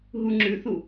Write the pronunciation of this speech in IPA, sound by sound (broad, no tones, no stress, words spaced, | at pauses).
ɦuŋ͡ǁʉθu